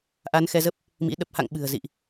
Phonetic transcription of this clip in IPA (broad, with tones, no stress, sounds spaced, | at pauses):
ʔ a˨˦ n x ɛ˧ z ə˦˥ p̚ | m ḭ˧˥ ɗ ə˨˩ p̚ h a̰˧˨ ŋ ɓ ɨ̤˨˩ ə̯ z ḭ˧˨ ʔ